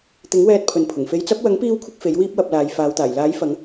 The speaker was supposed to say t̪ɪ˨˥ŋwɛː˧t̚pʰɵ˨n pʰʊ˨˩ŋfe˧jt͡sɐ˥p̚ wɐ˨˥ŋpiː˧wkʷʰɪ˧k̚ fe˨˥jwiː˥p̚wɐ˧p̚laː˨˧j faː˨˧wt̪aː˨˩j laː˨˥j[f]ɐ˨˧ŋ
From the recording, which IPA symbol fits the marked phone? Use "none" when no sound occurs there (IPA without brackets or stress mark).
f